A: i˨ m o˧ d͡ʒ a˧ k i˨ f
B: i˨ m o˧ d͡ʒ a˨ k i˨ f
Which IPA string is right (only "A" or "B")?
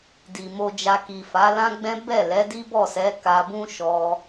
A